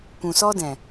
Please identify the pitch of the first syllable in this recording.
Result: low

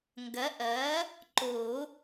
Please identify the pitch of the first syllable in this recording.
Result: rising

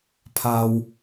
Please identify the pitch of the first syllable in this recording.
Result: low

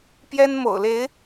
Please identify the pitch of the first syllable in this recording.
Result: high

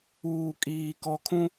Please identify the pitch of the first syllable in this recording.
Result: low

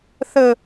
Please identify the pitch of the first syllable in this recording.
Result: high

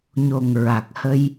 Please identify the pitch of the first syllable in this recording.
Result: low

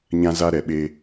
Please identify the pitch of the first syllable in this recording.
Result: high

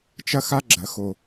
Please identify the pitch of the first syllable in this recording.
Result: high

